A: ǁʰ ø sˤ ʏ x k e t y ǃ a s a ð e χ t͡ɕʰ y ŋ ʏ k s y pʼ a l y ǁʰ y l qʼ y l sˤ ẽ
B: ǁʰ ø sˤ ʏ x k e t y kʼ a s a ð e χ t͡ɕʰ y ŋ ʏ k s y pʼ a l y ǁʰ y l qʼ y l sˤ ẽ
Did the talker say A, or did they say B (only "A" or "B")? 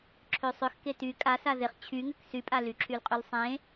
B